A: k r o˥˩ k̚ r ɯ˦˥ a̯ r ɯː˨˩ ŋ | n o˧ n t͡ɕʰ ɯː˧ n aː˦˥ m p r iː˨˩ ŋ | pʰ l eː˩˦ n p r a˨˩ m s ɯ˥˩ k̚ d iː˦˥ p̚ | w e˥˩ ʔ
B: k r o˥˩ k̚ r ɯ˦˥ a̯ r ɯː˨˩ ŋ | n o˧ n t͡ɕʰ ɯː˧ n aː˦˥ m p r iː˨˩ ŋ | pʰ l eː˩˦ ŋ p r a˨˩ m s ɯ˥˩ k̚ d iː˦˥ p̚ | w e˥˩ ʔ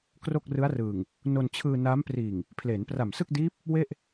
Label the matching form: A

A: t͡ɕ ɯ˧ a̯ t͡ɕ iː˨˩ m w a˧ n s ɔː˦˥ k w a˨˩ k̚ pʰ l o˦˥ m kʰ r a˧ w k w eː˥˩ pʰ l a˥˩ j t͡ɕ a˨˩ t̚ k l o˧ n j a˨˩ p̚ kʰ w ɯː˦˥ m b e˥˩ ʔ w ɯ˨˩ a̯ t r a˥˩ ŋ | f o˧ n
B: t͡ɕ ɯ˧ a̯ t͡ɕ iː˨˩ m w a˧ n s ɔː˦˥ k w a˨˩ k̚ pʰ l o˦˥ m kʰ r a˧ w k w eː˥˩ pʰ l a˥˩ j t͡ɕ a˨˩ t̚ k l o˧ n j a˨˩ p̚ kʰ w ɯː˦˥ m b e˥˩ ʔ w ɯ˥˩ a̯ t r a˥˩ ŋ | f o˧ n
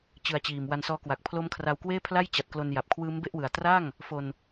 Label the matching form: A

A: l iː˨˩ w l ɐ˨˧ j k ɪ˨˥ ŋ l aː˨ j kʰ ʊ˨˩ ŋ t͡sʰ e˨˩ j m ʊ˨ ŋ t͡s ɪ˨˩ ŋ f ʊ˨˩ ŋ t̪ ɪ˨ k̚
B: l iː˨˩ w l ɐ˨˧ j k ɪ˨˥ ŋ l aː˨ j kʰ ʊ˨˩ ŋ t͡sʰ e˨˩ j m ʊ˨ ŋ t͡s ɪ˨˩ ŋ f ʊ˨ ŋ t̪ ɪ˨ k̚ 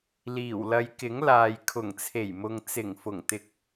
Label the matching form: A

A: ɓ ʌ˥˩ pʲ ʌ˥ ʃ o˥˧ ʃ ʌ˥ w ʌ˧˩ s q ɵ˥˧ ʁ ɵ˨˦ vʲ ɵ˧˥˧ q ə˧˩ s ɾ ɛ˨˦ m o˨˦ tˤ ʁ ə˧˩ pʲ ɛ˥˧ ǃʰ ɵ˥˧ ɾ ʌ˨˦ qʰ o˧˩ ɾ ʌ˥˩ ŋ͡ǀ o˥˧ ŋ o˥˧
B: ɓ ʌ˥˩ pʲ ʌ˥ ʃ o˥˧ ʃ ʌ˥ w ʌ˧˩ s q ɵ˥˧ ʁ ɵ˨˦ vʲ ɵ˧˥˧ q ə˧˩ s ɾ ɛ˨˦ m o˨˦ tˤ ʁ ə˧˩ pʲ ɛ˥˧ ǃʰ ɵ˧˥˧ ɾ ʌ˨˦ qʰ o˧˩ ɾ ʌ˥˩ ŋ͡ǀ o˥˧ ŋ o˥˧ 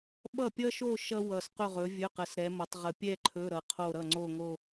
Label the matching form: B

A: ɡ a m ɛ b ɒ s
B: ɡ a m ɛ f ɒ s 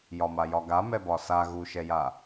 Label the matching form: A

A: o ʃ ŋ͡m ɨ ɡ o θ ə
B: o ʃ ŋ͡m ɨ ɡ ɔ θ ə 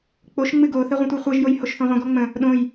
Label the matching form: A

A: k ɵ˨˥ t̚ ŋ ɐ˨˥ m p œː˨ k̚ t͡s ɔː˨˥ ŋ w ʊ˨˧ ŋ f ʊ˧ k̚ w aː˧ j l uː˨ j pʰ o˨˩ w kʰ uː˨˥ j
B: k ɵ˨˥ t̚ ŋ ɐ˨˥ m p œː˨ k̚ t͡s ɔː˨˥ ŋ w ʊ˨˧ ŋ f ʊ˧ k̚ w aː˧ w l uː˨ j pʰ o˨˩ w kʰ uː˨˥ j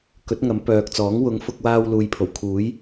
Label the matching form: B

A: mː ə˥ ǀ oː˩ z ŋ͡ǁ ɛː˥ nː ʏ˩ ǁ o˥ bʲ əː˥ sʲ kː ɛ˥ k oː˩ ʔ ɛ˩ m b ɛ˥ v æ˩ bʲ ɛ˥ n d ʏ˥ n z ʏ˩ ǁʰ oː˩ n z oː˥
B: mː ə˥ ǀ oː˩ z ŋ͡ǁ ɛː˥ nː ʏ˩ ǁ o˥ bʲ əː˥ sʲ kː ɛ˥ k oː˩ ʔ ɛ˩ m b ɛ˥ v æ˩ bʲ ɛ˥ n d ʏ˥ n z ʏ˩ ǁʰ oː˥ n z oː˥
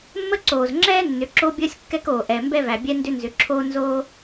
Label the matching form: B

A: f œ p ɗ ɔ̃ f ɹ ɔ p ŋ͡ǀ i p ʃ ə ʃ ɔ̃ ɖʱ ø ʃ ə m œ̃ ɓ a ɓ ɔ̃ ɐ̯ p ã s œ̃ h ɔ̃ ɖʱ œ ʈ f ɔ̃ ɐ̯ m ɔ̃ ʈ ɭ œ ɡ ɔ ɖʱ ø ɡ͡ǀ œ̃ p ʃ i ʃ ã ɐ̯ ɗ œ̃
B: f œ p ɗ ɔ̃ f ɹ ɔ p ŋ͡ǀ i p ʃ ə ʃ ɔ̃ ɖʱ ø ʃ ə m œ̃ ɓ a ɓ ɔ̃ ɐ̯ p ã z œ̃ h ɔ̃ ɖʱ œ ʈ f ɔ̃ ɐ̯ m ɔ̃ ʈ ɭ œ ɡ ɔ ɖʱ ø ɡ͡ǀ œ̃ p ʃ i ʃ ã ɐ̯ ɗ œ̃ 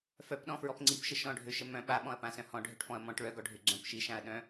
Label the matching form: A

